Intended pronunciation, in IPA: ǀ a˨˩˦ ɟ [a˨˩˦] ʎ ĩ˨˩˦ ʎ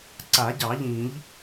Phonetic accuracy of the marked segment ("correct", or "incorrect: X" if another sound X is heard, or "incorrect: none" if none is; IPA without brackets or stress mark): incorrect: ɑ˨˩˦